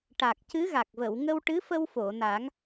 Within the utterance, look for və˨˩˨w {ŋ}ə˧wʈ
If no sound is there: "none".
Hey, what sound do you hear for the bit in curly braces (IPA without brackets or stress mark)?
ŋ